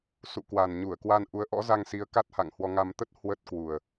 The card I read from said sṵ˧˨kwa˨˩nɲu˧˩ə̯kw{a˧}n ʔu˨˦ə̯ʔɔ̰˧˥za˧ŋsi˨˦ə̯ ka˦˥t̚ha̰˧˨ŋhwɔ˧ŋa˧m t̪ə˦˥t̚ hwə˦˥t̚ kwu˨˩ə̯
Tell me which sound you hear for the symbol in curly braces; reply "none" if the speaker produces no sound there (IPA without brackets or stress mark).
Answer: a˧